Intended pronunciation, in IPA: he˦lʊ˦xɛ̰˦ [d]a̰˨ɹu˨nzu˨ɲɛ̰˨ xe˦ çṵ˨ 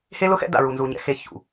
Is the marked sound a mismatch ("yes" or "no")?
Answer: no